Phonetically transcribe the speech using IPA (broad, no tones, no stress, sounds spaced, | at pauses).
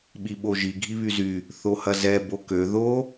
ɓ i ɓ o ʒ i ɡʱ i β y z y | θ o h ɐ z ɛ b o k ø ð o